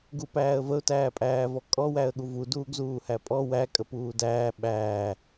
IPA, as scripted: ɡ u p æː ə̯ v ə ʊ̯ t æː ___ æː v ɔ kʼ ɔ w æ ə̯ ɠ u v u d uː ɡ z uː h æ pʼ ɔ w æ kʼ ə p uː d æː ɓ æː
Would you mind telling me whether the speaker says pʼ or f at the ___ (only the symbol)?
pʼ